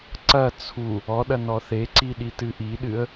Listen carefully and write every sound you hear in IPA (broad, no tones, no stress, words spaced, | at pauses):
ǀɐ t͡sʰu | ɔɗɐ nɔθeǀiɗi tɨʔiɗɨə̯